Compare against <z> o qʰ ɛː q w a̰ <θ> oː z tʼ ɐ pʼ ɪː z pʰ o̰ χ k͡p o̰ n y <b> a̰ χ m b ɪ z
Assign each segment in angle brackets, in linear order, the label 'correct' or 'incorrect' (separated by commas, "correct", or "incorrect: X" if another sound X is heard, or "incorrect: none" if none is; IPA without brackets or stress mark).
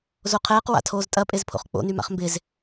correct, incorrect: tʰ, incorrect: m